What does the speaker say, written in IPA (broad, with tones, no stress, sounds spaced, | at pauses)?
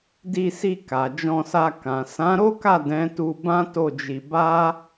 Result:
d i˧ s i˧ k a˨ d͡ʒ ɔ̃˧ s a˧ k ã˨ s ã˨˦ ɾ o˦ k a˦˨ d ɛ̃˨˦ t u˧ b ã˦ t o˦˨ d͡ʒ i˧ b a˦